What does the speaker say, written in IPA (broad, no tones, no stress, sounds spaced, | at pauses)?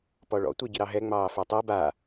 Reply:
p ɔ ɭ ɔ̰ tʷ e ɟ ɪ ɾ ɑ ɦ ɛ ŋ͡m ɑː f œ tˤ i b a